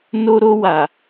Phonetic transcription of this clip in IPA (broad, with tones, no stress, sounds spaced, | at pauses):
n o˧ ɾ o˧ w a˨